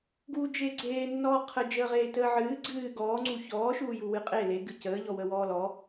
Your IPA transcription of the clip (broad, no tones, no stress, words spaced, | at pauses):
ɡuːd͡ʒeːɡ͡ǀeːnːɔː qʰə d͡ʒəːʁeːtəːʕɨː ɡ͡ǀɨː ɡɔːŋ͡ǀu çɔːʃuːju wɨqʼe leɡɨ cəːʎɔ wəwɔːlɔ